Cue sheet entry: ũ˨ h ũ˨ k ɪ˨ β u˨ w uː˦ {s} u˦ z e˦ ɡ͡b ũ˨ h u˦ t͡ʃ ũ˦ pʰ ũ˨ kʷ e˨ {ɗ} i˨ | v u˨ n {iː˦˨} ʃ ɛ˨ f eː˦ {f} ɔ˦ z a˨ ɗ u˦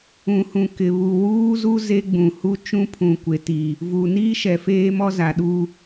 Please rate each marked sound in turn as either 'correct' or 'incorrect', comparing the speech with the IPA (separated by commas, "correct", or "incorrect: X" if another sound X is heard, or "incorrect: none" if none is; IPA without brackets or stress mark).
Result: incorrect: z, incorrect: t, incorrect: iː˦, incorrect: m